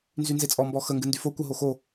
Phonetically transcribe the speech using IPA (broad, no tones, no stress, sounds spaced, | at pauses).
n z y n z e t͡sʼ ɔ m b ɔ x ə ŋ ɡ ɨ n d y f o kʷ ə ɦ o x o